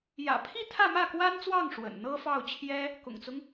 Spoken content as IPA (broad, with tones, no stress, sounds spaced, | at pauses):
j ä̰˨˩ pʰ i˥˧ t̪ʰ ä˥˧ m ä˥˩ k w a˥ n t͡s w ɑ˥˩ ŋ ʂ w ə̰˨˩ n n̪ ɤ˥ f ɑ˥˩ ʊ̯ t͡ɕʰ j ɛ˥ | k ʊ̰˨˩ ŋ t͡s ʊ˦ ŋ